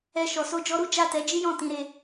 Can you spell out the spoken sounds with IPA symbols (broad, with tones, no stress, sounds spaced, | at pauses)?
ɛ˧ ʃ ɔ˨ s o˧ d͡ʒ ɔ˧ ɾ u˦ d͡ʒ a˦˨ t ɛ˨˦ d͡ʒ i˦ j ɔ̃˦˨ t ĩ˨˦ ɾ e˧